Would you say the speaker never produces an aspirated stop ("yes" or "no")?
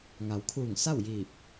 no